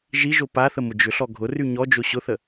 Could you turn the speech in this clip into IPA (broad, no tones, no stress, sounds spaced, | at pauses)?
ʒ i ʒ o p a θ ə m ʊ d͡ʒ ʏ ɬ ɔ ɡʱ ʊ r y ɲ ɔ d͡ʒ o ɕ ʊ θ ə